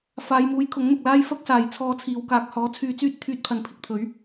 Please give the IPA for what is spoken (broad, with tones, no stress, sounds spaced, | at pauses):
f aː˨˧ j m uː˨˥ j kʰ ʊ˨˥ ŋ n̪ ʊ˨ k̚ l aː˥ j f ɐ˥ k̚ s aː˨˩ j t͡sʰ ɔː˧ t͡sʰ iː˨ w k aː˨ k̚ h ɔː˨˥ t͡sʰ yː˧ t͡s yː˥ t̚ t̪ʰ yː˧ t̚ pʰ ɐ˨ n pʰ ɪ˧ k̚ t̪ʰ ɵ˨˥ ɥ